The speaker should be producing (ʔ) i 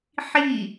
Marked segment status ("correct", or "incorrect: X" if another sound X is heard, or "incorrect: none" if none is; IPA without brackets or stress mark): incorrect: ħ